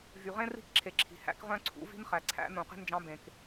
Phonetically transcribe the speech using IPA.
v y˨ ʁ ẽ˥ r i̤˥ k ǁʰ e˨ ǁʰ i̤˨ h æ̰˥ k ʁ œ̃˥ ǀʰ ṵ˧˥ v i̤˥ n χ æ˨ ǀʰ æ̰˧˥ n ũ˨ q e̤˥ n d͡ʒ ɑ̃˧˥ b ẽ˨ k

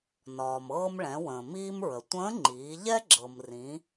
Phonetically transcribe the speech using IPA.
n ɒː˩ m ɤː˧ m ɭ ɛ̃˩˧ w ə̃ː˩ m iː˧ m ɹ ə˩ tʷ ə̃ː˧˥ ŋ͡ǃ iː˩˧ ʎ ɛ˥ ɡ͡ǁ ɤ˩ m r ĩ˩˧

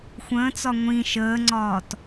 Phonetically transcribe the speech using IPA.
xʷ ə̃ː t͡s ɒ ŋʷ ĩ ʃ əː ŋ͡ǀ ɒː t

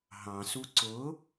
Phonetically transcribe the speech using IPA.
ɦ ɑ̃ s u ǀ ʊ

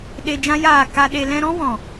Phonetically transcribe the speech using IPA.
ɗ e˧ d͡ʒ ã˦ j aː˦˨ k a˧ ɗ e˧ l ɛ̃˦ ɾ ɔ̃˦ w ɔ̃˨

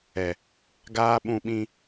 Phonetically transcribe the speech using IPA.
ɛ˨ | ɡ aː˦ ɓ ũ˦ ɓ ĩ˦

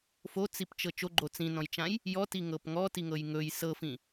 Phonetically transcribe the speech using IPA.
f o t͡s i p t͡ʃ ɤ t͡ʃ o ɡ͡ǃ o t͡s ĩ n ɔ̃ j t͡ʃ ã j | j ɔ t i ŋ ɤ p ŋ ɔ t i ŋ ɤ j ŋ ɵ j s ɤ f ĩ

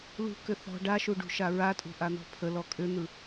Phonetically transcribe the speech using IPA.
l ṳ k ʏ θ ɔ̤ ɖ a ʃ u ɖ ṳ ʃ a ɹ a tʼ ṳ ʔ a n̪ ɔ̤ pʰ ə l ɔ kʼ ʏ n̪ ɯ

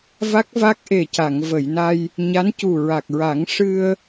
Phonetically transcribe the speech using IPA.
v a˦˥ k̚ v a˦˥ k̚ ʔ e˨˩ c a˨˩˨ ŋ v ə˨˩˨ j n a˧ j | ɲ a˧˥ n c u˨˩ ɹ a˨˩ k̚ ɹ a˨˩˦ ŋ ʂ ɨ˧ ə̯

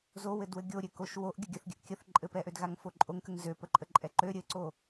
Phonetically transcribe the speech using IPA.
z o w ɘ d w ɘ ɡʲ o ɾʲ ø k o ʃ w o ʔ ɡʲ ə ɡʲ ə θ ɡʲ ɘ ʔ kʲ ə θ ǃʼ ɘ p ɛ ʔ ø d ɣ a ŋ f o ǃʼ o ŋ k ə ŋ z ø p ə ǃʼ ə ǃʼ ɛ ǃ ø ɾʲ ɘ ǀ o

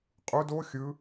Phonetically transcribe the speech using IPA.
qʼ u d o xʲ ɯ

